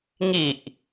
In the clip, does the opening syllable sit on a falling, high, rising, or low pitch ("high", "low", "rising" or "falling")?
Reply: low